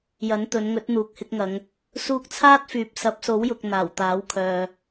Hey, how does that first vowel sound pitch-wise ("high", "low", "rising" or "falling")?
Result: rising